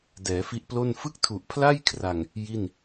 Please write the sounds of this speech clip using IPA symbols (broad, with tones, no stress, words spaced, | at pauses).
dɛː˩˦fi˦˥ʔplo˥˩n fɯ˥˩k̚tʰu˨˩ʔpʰla˥˩jkʰra˨˩ŋ | ji˥˩n